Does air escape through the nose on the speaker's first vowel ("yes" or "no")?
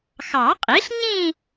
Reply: no